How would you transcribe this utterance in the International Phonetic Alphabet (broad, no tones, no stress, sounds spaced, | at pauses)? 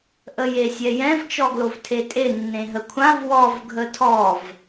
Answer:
ʔ ə j e sʲ ɛ j ɛ̃ v t͡ʃ ɔ ɡ l o v tʰ e tʼ e nː ẽ ɦ ə kʷʰ ã v w ɔ v ɡʱ ə tʰ ɔ v